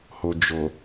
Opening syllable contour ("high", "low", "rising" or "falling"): low